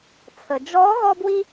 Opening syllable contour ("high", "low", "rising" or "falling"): low